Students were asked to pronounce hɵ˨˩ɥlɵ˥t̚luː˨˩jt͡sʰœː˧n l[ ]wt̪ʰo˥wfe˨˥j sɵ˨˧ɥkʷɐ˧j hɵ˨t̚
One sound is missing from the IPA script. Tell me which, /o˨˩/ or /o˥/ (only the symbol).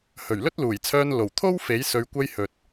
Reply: o˨˩